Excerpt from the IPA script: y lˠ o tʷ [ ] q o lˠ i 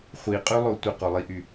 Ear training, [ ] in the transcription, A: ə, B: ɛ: A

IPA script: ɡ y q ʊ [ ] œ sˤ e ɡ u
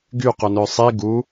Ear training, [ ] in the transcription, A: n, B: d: A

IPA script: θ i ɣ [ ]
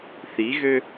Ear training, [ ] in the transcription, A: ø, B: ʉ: A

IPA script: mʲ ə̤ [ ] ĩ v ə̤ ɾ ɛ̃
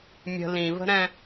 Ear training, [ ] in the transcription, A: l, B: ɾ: A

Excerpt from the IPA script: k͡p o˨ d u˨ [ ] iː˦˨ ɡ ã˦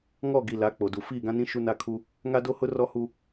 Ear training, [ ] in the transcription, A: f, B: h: A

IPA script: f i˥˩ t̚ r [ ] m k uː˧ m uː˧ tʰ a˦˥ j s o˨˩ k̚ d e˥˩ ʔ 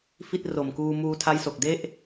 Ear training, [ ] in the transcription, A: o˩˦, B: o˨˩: B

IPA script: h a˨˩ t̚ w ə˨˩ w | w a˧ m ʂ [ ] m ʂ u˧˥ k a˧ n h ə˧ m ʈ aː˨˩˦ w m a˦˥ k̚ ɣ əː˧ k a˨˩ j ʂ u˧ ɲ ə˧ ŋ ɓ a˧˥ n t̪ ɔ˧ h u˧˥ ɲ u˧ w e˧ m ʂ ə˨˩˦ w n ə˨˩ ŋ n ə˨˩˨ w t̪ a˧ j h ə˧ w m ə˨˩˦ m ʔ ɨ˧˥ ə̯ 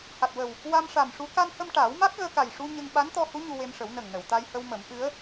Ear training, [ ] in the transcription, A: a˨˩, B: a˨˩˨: A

